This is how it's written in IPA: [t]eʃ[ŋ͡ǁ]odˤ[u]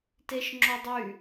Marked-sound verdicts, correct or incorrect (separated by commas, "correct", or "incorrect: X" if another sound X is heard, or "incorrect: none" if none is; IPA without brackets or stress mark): correct, correct, incorrect: y